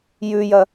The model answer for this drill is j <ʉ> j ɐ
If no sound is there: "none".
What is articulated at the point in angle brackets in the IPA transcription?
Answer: ʉ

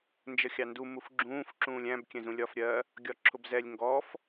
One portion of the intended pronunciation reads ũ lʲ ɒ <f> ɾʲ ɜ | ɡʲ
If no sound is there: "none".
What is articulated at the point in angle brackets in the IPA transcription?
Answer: f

